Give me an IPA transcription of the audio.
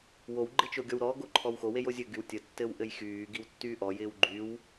wowɡ͡ǃɪ t͡ʃoɡʲɔwɾɔɡo ǃʰɔwxowej ozʲɘɡyw tʲətːɘw ʔɘjxyːɡiw tːyːʔɔjɪːw ɡ͡ǃyw

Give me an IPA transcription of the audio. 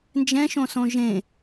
nd͡ʒɛ̃ʃõsõ ʒẽ

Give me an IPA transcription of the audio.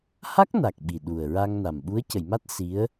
ha˦˥k̚na˨˩k̚ ɓi˨˩ɗu˨˩ə̯ɹa˧ŋna˨˩m ɓu˧˥ə̯ cə˨˩˨jma˦˥t̚ si˧˥ə̯

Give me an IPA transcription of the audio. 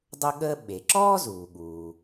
dˤʊ˥ɠəː˥ ɓe˩ǁɔː˥ zuː˩ɠuː˩

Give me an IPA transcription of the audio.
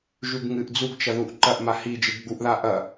ʒʉɡŋɨʔ d͡zuɡt͡ʃɐ ðuʔǃɐʔ mahi d͡ʒɨɡɡ͡buʔða ʔɐ

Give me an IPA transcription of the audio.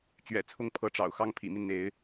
t͡ɕɥɛ̰˨˩t͡sʰʊ˥˨ŋpʰɤ˨˦ʈ͡ʂɑ̰˨˩ʊ̯ xɑ˦ŋpʰḭ˨˩mi˦nn̪e˨˦ɪ̯

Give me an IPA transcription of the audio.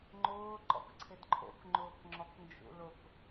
ŋ͡ǃʊː ǃɔ̰kǀʰɪdǃʰo̰k ŋ͡ǃʊːkŋ͡ǁɔknd͡ʒṵlʊk

